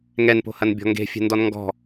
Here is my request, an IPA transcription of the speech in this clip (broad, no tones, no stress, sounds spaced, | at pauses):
ŋ ɛ n p o̤ h ɐ n bʲ ɔ̤ ŋ ɡ e̤ fʲ ɛ̤ n d ɔ n ŋ ɡ ɔ̤